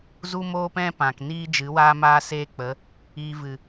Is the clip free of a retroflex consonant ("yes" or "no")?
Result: yes